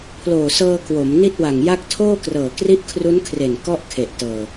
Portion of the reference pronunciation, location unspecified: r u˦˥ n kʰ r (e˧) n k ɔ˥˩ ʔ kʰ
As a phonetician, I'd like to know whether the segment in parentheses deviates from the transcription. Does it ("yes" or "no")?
yes